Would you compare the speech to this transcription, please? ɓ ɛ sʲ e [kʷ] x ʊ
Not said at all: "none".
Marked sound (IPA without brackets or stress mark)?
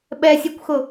kʷ